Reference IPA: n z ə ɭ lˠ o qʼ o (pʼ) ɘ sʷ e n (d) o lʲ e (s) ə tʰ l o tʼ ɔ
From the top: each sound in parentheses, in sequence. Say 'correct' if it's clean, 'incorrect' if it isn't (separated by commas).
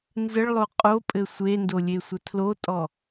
correct, correct, incorrect